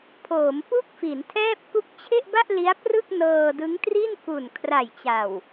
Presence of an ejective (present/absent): absent